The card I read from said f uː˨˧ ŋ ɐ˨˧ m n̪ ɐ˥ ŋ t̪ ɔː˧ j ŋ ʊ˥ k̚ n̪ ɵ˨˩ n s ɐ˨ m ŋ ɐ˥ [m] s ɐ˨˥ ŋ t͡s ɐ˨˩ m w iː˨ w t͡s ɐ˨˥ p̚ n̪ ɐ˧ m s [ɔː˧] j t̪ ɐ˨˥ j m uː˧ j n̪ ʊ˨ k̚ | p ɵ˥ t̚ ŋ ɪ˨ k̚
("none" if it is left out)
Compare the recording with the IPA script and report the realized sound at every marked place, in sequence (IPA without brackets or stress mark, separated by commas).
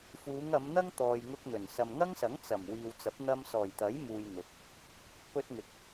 ŋ, ɔː˨˩